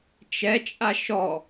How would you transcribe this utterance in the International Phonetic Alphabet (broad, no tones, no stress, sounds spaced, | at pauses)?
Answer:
t͡ʃ ɛ t͡ʃʼ a ʃ ɔ